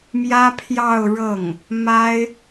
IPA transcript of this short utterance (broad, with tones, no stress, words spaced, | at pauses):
mjä˥pʰjɑ˥˧ʊ̯ɻɤ˥˩ŋ | ma˥ɪ̯